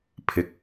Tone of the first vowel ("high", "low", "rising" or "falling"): low